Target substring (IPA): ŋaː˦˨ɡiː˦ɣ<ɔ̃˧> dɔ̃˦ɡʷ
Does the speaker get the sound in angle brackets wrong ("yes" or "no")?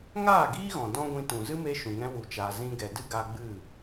yes